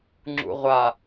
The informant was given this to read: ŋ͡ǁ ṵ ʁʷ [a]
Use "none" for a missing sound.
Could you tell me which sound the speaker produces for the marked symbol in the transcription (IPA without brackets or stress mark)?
a